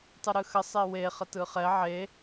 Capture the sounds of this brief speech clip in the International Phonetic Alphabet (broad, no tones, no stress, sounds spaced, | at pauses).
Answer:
tˤ ɯ ɾ ɯ x ə sˤ e w e χ ə t ɯ χ ɛ ʕ e